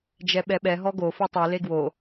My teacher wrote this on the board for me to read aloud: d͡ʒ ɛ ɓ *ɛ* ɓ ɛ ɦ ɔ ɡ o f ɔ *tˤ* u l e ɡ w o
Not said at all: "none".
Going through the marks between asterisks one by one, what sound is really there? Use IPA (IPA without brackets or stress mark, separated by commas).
ɛ, tˤ